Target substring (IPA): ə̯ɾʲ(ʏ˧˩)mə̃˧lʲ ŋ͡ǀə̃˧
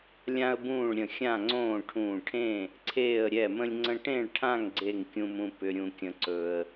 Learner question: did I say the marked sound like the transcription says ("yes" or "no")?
no